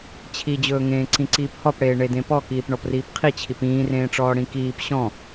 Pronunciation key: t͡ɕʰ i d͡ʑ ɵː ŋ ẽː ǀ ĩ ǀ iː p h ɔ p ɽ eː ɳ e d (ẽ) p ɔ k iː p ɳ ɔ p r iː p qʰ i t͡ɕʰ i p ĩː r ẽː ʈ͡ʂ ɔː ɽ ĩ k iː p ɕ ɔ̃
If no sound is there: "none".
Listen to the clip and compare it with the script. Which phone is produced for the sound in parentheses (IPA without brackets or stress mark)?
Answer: ẽ